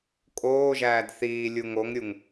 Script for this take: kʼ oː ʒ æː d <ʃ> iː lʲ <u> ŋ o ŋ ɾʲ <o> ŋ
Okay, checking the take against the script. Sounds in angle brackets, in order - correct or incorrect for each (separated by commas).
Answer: incorrect, correct, incorrect